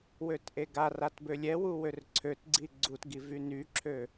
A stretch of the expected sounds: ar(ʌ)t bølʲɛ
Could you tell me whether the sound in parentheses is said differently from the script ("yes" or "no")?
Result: yes